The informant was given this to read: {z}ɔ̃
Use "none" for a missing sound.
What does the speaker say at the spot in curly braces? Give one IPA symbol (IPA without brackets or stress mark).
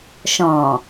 ʃ